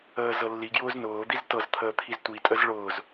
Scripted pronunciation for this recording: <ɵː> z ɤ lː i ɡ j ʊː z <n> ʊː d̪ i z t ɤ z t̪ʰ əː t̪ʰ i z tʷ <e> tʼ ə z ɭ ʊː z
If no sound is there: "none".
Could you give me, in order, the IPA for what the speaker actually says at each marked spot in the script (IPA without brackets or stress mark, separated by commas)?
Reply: əː, n, i